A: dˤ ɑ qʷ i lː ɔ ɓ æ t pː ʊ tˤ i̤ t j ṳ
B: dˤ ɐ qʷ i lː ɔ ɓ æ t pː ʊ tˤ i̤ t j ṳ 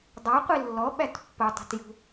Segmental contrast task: A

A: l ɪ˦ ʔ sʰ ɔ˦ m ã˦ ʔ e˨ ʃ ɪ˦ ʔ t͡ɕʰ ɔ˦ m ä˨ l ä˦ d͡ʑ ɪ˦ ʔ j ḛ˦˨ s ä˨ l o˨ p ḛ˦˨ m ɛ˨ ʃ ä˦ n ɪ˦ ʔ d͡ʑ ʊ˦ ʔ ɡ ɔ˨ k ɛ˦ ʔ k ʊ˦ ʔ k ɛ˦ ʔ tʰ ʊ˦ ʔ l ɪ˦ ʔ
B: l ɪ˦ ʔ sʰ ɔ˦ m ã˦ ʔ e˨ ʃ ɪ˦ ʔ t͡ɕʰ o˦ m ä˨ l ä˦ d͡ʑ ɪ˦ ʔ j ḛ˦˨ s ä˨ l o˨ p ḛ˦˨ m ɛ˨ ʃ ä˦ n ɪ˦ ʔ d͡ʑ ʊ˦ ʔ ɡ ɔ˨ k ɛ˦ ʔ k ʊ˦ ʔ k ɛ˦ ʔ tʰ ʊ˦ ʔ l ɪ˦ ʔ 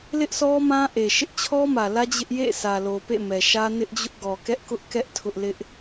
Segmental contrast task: A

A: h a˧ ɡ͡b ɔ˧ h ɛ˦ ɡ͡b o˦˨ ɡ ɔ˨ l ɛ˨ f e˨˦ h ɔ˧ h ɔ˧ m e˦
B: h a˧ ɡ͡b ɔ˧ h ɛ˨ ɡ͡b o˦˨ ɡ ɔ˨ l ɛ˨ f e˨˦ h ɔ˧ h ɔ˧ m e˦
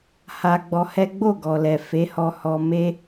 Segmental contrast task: A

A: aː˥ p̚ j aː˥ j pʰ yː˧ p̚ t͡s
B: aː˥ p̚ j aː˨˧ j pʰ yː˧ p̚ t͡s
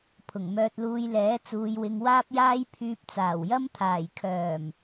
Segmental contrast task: A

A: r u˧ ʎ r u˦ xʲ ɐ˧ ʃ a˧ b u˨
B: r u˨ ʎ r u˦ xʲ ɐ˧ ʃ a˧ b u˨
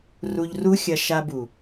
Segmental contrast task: A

